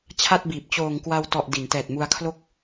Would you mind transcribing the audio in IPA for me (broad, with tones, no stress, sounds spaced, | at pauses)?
t͡ɕʰ a˥˩ t̚ b iː˨˩ p̚ t͡ɕ oː˨˩ ŋ k w a˧ w t ɔ˨˩ ʔ d i˩˦ n t ɛː˨˩ t̚ m u˧ a̯ kʰ l o˥˩ k̚